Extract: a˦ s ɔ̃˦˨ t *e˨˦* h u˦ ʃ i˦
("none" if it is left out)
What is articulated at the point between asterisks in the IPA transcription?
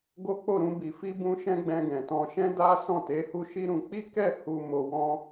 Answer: e˨˦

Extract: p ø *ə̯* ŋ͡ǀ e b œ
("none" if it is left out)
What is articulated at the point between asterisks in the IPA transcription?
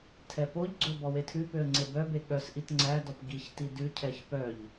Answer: ə̯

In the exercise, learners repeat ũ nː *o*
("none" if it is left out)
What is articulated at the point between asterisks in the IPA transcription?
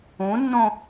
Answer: õ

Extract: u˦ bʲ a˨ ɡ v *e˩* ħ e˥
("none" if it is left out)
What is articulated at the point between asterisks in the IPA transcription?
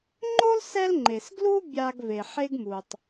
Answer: e˩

